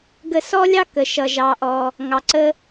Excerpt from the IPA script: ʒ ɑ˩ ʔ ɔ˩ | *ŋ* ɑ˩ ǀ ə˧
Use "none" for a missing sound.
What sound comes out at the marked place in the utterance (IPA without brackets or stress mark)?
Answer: ŋ